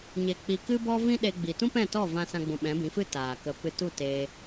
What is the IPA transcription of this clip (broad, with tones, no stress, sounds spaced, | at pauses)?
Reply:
ɲ e˨ k͡p i˨ k ɨ˦ b ɔ˦ v ĩ˦ ɗ e˧ ɡ͡b i˨ t ũ˦ p ɛ̃˦˨ t ɔ˦˨ v ã˧ s ã˧ ɡ͡b ũ˨ ɓ ɛ̃˨˦ b ĩ˨˦ f ɨ˦ t aː˨ k ə˧ p ɨ˧ t u˦˨ t eː˧